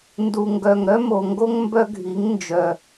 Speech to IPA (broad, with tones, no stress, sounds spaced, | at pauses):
n d u˨ ŋ ɡ œ˨ ŋ ɾ œ˦ m o˨ ŋ ɡ o˦ ŋ m b œ˦ ɡʱ i˨˦ ŋ n d͡ʒ œ˨